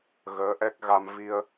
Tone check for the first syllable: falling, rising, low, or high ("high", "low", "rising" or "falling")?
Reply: rising